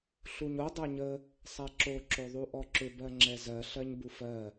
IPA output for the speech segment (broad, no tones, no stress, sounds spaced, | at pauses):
ɬ u ɲ o dˤ ɛ ɲ ə | sˤ ɛ ǁ o ǁ o ðˤ u ʔ ɔ ǁ ʏ b ɜ ŋ͡ǁ ɛ z ɜ ɬ ɜ ɲ b u f ɜ